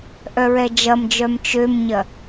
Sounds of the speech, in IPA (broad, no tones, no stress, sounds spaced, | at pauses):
ʔ œ ɹ ɛ d͡ʒ ɐ m d͡ʒ œ m t͡ʃ ø m ɲ ɐ